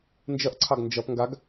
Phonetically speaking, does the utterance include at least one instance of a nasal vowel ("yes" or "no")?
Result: no